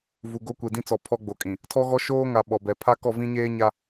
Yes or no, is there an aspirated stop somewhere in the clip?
yes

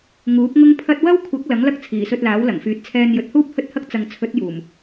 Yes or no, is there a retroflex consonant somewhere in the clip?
no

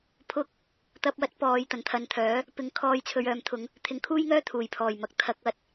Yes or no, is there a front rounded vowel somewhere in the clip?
yes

